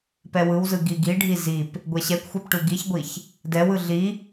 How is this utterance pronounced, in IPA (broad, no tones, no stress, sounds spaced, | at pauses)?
p ɛ w ɯ w z ɯ ɡ i ɡ i ɖʱ i z i p | ɡʷ ɛ ɕ ɛ kʷ xʷ ɛ p ʈ u ɡ i ç ɡʷ i ç | d ɛ w ɯ ɮ i